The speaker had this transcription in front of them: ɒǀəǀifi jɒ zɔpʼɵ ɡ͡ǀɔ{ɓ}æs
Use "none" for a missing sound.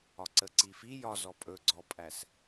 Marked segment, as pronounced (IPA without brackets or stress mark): pʼ